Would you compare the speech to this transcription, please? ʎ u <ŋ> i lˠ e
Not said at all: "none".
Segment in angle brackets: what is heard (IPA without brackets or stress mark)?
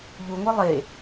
ŋʷ